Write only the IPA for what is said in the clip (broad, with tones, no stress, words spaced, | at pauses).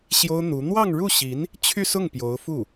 ɕjo˥ʊ̯n̪u˧˥ n̪wɑ˥˧ŋɻu˥˩ɕi˧˥n | t͡ɕʰy˥˧sʊ˥˩ŋ pjo˧˥ʊ̯ fu˥˩